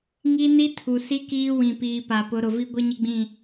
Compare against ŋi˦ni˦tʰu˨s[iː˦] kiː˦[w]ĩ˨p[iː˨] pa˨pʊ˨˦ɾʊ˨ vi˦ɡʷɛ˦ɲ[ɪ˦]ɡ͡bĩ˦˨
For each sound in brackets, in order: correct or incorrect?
incorrect: i˦, correct, correct, correct

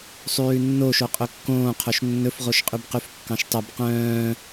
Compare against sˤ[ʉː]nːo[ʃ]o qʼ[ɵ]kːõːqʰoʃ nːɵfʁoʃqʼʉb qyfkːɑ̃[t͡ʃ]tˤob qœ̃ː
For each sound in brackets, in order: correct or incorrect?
correct, correct, correct, incorrect: ʃ

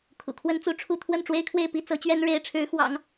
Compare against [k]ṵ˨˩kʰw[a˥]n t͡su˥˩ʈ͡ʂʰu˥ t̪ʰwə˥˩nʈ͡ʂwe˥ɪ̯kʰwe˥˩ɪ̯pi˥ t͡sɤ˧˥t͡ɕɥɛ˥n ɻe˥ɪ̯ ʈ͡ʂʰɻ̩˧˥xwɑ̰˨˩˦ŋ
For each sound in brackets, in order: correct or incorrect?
incorrect: kʰ, incorrect: ə˥

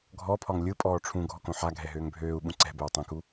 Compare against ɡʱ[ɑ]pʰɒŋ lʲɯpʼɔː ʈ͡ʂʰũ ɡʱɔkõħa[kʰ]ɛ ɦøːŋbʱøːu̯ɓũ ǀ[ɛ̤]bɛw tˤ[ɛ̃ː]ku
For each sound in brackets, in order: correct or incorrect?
incorrect: ɔ, incorrect: ɡʱ, correct, incorrect: ɛ̃

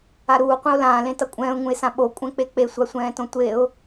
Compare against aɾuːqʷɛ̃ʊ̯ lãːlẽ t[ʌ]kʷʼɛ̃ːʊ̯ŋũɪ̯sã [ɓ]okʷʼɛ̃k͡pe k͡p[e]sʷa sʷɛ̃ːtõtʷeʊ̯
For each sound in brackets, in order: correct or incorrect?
correct, correct, correct

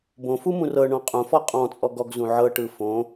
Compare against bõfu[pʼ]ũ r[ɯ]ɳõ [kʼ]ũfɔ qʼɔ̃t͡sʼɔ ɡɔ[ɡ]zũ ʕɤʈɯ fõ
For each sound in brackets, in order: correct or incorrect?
incorrect: m, incorrect: ɤ, incorrect: qʼ, correct

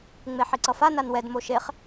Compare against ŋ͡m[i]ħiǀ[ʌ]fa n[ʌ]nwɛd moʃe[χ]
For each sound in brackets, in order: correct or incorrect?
incorrect: e, correct, incorrect: a, correct

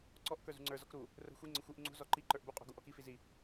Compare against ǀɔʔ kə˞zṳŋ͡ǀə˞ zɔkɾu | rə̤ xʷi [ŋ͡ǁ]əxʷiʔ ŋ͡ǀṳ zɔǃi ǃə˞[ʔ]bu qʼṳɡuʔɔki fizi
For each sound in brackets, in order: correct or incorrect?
incorrect: ŋ͡ǀ, correct

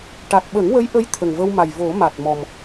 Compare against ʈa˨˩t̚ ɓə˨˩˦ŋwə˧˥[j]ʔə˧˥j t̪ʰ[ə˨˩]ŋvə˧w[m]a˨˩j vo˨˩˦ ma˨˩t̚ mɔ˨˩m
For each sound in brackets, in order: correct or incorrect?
correct, correct, correct

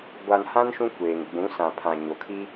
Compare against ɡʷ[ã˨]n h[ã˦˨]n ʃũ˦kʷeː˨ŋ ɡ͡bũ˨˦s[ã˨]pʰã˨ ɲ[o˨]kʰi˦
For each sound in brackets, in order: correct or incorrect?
incorrect: a˨, incorrect: ã˦, correct, correct

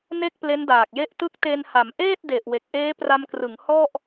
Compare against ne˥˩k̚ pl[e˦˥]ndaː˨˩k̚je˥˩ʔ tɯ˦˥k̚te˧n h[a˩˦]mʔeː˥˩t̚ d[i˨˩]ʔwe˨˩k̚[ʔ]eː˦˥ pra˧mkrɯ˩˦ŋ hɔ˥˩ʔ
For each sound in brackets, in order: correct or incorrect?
correct, correct, incorrect: e˨˩, correct

